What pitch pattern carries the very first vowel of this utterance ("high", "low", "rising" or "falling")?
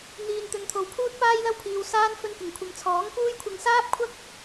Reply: low